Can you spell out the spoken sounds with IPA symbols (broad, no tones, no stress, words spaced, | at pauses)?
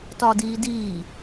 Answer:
tɒdiːdiː